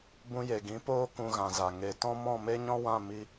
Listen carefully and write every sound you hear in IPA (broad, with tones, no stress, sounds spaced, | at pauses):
b ũ˧ j e˨ ɡ ĩ˨˦ p oː˦ k ũ˧ ɣ ã˨ z a˨ ŋ e˨ t ɔ̃˦ m ɔ̃˦˨ m e˦ ɲ ɔ̃˦ w ã˦˨ m i˧